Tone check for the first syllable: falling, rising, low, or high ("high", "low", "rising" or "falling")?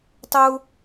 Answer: high